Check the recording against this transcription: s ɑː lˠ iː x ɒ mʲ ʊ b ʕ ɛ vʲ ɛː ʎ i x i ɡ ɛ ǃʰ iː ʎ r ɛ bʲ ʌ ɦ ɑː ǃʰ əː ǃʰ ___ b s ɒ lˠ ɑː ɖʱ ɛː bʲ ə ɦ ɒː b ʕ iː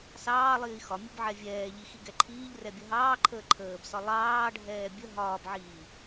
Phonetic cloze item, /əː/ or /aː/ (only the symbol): əː